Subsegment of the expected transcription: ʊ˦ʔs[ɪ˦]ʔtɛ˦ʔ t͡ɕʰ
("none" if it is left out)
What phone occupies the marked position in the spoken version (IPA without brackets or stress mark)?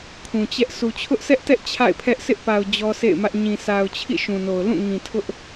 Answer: ɛ˦